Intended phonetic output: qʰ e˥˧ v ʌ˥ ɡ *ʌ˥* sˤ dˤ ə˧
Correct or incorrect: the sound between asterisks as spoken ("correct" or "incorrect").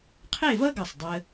incorrect